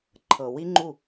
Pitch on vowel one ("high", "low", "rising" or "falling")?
low